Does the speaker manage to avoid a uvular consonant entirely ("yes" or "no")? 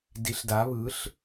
yes